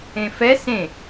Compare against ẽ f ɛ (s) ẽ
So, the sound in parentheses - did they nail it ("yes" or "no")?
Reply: yes